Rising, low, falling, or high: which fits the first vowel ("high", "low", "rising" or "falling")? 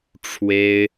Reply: high